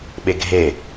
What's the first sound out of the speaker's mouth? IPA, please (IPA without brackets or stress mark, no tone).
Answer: ɓ